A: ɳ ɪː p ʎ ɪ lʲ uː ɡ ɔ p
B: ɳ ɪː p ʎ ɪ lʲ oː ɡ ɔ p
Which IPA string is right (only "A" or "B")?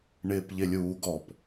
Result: A